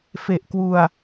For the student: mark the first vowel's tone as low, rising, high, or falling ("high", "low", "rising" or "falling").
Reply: low